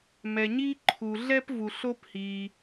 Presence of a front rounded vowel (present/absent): absent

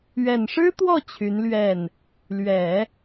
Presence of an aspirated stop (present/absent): present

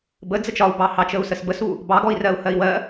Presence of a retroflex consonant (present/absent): absent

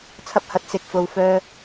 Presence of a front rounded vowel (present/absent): present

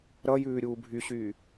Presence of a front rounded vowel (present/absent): present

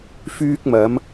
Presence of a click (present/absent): absent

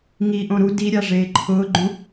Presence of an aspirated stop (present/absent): present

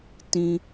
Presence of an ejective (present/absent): absent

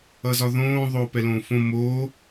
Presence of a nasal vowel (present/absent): present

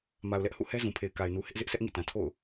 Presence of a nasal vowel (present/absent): present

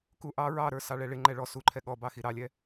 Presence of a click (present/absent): present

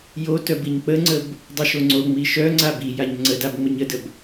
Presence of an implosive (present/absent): absent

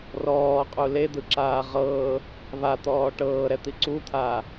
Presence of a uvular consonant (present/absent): present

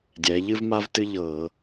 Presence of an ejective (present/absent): absent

